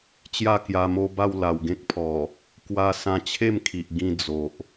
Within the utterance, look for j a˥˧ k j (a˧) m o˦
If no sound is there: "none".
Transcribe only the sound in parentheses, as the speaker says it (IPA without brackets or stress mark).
a˧